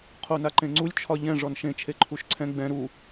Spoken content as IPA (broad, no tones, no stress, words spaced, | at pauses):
qʰonaǃẽŋ͡ǀulʲ t͡ʃʰɒʎɛ̃ ʐɔnʃẽ t͡ʃʰeǃʰuʃǀʰɛ̃ ɡ͡bɛ̃ ɾu